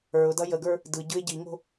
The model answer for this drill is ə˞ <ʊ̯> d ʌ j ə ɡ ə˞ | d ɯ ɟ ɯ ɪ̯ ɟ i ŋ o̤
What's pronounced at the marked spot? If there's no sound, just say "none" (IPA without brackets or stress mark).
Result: ʊ̯